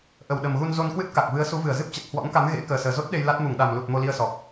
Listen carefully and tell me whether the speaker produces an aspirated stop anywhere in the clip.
no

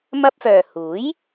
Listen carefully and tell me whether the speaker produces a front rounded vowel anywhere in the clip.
yes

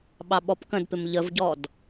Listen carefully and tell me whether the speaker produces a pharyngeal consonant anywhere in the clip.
no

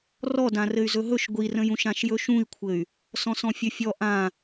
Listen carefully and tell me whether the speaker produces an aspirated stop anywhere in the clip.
yes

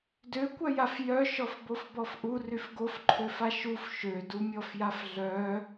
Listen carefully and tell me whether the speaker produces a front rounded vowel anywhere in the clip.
yes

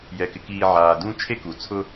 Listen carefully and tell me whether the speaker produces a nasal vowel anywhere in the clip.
yes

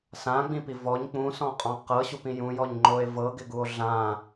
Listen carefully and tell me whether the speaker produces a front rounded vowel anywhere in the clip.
no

